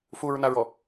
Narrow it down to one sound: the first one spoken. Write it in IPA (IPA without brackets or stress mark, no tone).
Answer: f